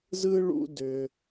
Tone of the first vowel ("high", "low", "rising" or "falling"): high